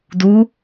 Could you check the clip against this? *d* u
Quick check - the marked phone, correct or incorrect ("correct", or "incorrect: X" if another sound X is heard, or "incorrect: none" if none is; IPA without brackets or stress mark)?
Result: correct